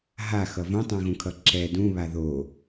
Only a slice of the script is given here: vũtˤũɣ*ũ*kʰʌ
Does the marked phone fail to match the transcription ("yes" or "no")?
no